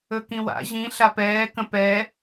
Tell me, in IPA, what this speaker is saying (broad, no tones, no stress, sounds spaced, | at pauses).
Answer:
ɵ k ĩ w a̰ ʑ ĩ ɬ a p ɛː k ə̃ p ɛ